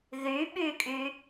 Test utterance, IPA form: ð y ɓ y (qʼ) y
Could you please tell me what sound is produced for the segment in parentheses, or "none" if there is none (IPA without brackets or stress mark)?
kʼ